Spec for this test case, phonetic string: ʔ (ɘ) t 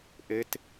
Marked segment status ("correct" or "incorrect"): correct